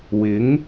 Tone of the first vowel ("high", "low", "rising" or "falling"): rising